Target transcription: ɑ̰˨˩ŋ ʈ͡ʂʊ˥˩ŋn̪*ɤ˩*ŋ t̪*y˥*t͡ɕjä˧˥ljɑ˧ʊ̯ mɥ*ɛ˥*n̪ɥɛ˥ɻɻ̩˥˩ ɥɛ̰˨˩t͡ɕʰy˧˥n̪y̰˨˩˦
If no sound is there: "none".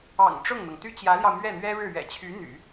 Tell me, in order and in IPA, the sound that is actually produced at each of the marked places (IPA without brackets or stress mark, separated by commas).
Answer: ɤ˩, y˥, ɛ˥˩